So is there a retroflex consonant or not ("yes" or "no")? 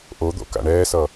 yes